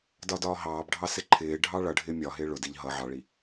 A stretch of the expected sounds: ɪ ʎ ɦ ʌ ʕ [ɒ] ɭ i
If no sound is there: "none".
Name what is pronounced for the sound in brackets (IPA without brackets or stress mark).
ɑ